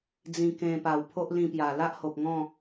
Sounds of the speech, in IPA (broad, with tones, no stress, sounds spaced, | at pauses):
d͡z ĩ˧ k ẽ˧ p a˨˩ w pʰ o˦ ʔ l ĩ˧ p j a˨˩ l a˦ ʔ h o˨ p̚ ŋ ɔ̃˥˧